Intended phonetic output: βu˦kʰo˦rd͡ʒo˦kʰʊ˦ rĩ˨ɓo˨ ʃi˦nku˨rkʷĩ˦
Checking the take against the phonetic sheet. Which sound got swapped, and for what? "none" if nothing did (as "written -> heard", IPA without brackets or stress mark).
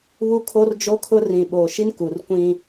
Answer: none